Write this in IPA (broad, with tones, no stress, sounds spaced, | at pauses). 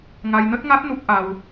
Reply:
ŋ a˧ j n ə˦˥ t̚ ŋ a˦˥ t̚ n u˦˥ k̚ ʔ a˧ w